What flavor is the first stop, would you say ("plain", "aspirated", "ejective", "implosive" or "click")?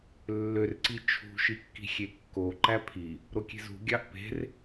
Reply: click